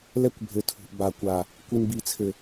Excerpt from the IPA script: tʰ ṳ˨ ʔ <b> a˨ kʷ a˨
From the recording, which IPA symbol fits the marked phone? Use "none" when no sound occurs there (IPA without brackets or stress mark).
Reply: b